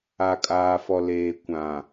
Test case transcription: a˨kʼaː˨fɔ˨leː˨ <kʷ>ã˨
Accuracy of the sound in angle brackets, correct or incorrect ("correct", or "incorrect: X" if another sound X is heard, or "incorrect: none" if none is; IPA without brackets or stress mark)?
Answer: correct